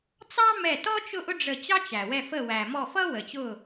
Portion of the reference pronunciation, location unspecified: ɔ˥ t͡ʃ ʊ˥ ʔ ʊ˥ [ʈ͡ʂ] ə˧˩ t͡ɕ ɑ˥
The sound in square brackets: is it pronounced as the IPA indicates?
no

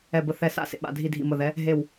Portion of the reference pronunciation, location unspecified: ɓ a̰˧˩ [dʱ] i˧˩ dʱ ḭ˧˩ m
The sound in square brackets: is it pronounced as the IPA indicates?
yes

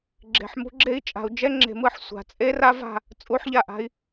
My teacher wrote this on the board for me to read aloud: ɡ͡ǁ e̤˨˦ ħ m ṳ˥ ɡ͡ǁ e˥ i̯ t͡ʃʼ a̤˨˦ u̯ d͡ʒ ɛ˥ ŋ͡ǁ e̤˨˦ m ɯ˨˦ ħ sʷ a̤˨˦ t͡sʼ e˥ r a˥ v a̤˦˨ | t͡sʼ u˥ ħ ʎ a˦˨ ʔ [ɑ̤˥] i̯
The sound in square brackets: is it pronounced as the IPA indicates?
no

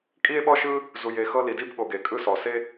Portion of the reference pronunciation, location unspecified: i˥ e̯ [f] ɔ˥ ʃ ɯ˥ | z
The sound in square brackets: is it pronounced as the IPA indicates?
no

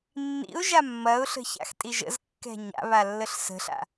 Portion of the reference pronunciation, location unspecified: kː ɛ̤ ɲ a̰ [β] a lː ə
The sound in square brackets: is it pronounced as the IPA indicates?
yes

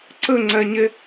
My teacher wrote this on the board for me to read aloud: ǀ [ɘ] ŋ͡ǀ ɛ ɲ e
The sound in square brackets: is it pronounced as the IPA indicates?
yes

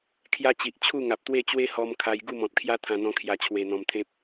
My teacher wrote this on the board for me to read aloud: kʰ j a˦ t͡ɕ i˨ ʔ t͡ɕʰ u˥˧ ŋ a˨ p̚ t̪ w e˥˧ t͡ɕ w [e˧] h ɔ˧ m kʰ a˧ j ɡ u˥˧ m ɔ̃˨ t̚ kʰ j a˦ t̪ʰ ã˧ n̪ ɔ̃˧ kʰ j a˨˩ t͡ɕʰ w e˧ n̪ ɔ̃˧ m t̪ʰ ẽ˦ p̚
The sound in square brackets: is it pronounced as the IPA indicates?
no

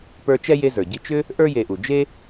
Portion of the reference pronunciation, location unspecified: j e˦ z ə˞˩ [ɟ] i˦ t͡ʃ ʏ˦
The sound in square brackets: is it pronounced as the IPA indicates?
yes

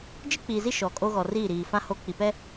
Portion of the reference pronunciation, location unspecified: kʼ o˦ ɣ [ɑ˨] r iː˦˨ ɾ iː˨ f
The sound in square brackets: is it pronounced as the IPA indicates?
no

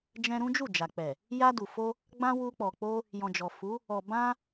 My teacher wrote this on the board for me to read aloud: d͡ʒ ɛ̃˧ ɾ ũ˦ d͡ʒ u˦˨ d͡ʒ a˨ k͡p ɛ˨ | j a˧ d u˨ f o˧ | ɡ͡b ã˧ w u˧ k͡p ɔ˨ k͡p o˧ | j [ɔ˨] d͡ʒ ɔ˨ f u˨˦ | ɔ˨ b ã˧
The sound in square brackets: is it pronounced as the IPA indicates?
no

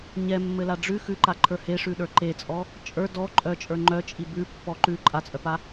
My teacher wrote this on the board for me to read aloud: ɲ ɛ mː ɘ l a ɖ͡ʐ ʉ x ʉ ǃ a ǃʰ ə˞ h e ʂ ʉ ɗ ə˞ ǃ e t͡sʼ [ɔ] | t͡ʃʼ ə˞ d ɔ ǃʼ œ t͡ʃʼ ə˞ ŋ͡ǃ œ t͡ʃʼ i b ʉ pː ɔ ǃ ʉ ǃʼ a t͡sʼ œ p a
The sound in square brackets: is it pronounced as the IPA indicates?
yes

